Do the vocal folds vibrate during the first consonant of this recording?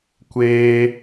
no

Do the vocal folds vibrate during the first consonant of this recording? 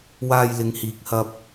yes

